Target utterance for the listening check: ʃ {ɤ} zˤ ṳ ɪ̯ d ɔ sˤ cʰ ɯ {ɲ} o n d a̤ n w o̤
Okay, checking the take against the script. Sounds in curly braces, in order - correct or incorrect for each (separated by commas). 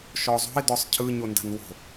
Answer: incorrect, correct